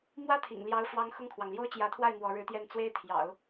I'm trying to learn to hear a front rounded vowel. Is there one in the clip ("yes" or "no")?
no